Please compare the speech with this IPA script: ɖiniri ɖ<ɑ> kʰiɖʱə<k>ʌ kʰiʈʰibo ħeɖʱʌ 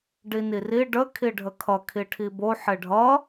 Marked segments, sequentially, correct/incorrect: incorrect, incorrect

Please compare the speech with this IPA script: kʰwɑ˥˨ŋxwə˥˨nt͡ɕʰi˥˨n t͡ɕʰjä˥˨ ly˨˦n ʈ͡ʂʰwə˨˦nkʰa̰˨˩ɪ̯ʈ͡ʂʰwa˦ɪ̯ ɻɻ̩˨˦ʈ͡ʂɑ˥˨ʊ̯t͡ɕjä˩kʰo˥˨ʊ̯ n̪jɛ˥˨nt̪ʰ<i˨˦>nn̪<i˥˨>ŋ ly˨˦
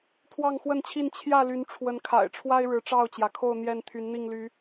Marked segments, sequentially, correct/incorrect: incorrect, correct

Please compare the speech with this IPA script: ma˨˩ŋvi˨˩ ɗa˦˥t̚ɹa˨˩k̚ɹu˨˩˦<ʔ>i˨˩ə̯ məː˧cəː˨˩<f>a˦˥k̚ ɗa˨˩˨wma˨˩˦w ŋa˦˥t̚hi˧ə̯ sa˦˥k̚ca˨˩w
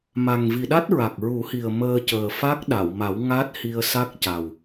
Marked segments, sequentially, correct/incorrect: incorrect, correct

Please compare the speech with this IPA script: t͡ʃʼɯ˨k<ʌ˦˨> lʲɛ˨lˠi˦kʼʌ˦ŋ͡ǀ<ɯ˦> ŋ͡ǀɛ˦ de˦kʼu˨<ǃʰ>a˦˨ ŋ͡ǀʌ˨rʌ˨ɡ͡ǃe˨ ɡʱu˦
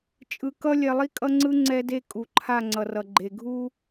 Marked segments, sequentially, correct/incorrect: incorrect, correct, correct

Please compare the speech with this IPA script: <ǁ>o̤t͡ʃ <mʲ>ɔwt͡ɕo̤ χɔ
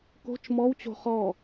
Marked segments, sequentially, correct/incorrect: incorrect, incorrect

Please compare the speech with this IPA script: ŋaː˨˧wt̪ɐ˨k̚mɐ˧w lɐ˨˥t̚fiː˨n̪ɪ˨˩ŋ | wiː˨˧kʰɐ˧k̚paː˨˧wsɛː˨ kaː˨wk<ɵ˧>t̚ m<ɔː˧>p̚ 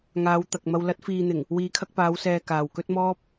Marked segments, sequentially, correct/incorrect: incorrect, incorrect

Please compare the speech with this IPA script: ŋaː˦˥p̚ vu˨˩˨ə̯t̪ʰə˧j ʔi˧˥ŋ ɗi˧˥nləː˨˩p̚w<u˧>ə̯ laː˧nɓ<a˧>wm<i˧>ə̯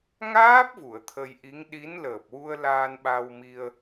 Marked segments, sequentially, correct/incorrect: correct, correct, correct

